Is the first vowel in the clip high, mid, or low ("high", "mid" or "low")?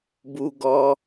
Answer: high